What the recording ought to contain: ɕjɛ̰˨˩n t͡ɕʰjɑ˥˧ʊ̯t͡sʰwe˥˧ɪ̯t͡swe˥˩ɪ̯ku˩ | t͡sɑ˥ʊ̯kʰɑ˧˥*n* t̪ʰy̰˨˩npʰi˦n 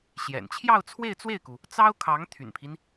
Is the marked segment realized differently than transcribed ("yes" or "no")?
yes